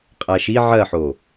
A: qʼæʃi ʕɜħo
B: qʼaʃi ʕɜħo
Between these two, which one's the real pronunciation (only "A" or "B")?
A